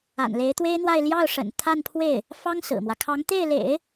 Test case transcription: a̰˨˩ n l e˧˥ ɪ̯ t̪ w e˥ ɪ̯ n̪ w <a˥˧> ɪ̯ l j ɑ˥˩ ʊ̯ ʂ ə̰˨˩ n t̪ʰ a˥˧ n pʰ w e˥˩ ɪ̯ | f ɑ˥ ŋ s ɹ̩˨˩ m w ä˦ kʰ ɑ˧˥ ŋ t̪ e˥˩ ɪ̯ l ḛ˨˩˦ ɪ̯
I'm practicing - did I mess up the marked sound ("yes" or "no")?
no